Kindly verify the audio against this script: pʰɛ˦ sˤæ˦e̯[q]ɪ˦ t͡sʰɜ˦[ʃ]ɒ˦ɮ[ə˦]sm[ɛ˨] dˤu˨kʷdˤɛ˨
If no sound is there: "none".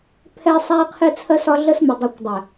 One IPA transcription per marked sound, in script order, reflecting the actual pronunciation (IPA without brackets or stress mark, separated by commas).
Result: qʰ, s, ə˦, ɪ˨